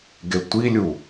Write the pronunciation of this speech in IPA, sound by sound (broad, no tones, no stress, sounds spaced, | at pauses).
ɡ e tʷ i lʲ u